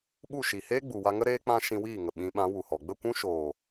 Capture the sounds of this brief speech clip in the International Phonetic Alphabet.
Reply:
ɓ u˦˨ ʃ i˨ h eː˦ ɡ͡b u˨ w a˧ ŋ ə˦ ɾ eː˦ k͡p ã˦ ʃ ĩ˧ w iː˦˨ ŋ ə˨ ɓ ĩ˨˦ ɓ ã˨˦ w u˨ h ɔ˨ ɡ͡b ə˦˨ kʷ ũ˦ ʃ oː˨

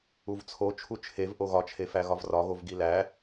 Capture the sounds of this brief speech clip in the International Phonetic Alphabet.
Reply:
u v t͡sʰ o t͡ʃʰ u t͡ʃʰ e v ʔ o ɣ ɒ t͡ʃʰ e f æ ɣ ɒ v r ɒ ɣ o v ɡ i l æ

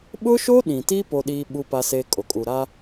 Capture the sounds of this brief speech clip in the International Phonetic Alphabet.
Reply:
ɓ ʊ˦ ʃ o˦ ɗ ĩ˨ t i˦ p o˦ ɗ iː˦ ɓ u˦ p a˦ s e˦ kʼ o˨ kʼ u˨ ɾ a˦

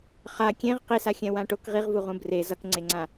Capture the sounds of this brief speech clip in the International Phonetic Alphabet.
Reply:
χ a kʲ ẽ ʁ q i s a xʲ ɛ̃ w ã ʈ o k ʁ i ʁ v u ʁ ũ b r e z ʌ k ŋ͡ǀ e ŋ͡ǀ ã

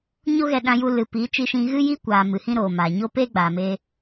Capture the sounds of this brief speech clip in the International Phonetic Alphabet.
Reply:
ɲ o˦ ɣ ɛ˧ ɗ ã˧ j u˧ l ɨ˨ p i˨˦ t͡ʃ i˧ ʃ ĩ˧ ɣ ɨ˦ j iː˦ kʷ aː˨ m ɨ˨ h ĩ˦ ɾ oː˨ m aː˨ ɲ o˧ p eː˦ ɡ͡b aː˨ m eː˧

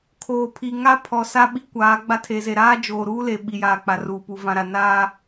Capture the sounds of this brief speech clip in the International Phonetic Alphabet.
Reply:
kʰ oː˨ pʰ i˨ ŋ a˦ pʰ ɔ˨ s a˦ ɓ i˦ kʷ aː˨˦ ɡ͡b a˦ tʰ e˨ z e˨ ɾ aː˦ d͡ʒ oː˨ ɾ uː˦ l e˨ ɓ i˨ j aː˨ k͡p a˨ r uː˨ p u˨ v ã˨ ɾ a˨ n aː˦

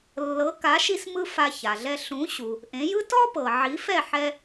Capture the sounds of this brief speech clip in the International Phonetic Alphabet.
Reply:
lː ɤ˩˥ k a˩˥ ʃ i˧ s m ɯ˧ f a˧ ç a˩ ɮ ɛ˧ ɬ ũ˩˥ ɕ u˩ | ʔ ẽ˩˥ j ɯ˥ t ɔ˥ p ɤ˩ ʕ i˩˥ f ɛ˥˩ ħ ɛ˧

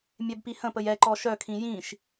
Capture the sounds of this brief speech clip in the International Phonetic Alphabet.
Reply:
mʲ ɛ b p i h ə̃ p ə j ɛ ǃ ɔ ʃ œ kʰ ĩ j ĩ ʃ

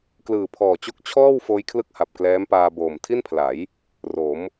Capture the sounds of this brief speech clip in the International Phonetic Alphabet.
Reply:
k l ɯː˨˩ pʰ ɔː˨˩ t͡ɕ o˦˥ k̚ t͡ɕʰ ɔː˥˩ w f oː˦˥ j kʰ l ɯ˥˩ k̚ h a˨˩ p̚ k l ɛː˦˥ m p aː˧ b oː˨˩ m tʰ i˥˩ n pʰ l a˩˦ j | r o˩˦ m

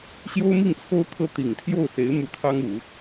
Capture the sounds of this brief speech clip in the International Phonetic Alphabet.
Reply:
ɕ j o˥ ʊ̯ m i˥˩ ŋ t͡sʰ o˥ ʊ̯ t̪ʰ ɤ˥ t̪ i˨˩ ŋ t̪ʰ j o˥˩ ʊ̯ s e˧˥ ɪ̯ m u˧˥ t̪ʰ ɑ˥ ŋ u˨˩˦

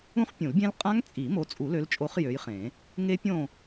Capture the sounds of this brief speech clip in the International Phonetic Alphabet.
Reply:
ũ˦˥ χ pʲ ũ˨˩˦ l bʲ ẽ˦˥ l qʼ ã˦˥ ŋ t͡sʼ i˨˩˦ m o˨˦ t͡sʼ u˨˩˦ l ø˨˦ l t͡ʃʼ o˨˦ χ j ø˨˦ j χ ẽ˨˩˦ | ŋ e˦˥ pʲ õ˦˨

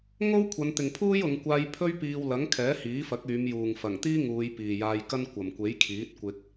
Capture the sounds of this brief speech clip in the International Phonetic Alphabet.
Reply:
ŋ o˥ w kʷʰ ɐ˨˧ n t̪ ɪ˨ ŋ pʰ uː˥ j ʊ˨˧ ŋ kʷ aː˧ j pʰ ɵ˥ ɥ p iː˧ w l ɐ˨˥ ŋ kʰ ɛː˨˥ h iː˨˥ f ɐ˨˥ k̚ yː˨˧ m j uː˨ ŋ f ɐ˨˩ ŋ t̪ iː˥ ŋ uː˨˧ j p iː˨ j aː˧ j k ɐ˥ n kʷ ɐ˨ m kʷ e˨˥ j kʰ iː˨˥ t̚ kʷ ɪ˧ k̚

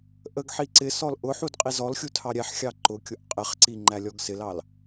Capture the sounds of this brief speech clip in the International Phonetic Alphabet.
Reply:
ʔ ə ɡ ħ i ǀ ɪ s ɔ l ʔ ʊ ħ u d qʼ i z ɔ l xʲ u tʰ ɑ ɾʲ ɛ ħ xʲ ɑ ǃ ʊ kʲ ʊ ʔ qʼ ɪ χ ǀ i ŋ͡ǃ æ lʲ ɔ ɡ s ɪ l ɑ l

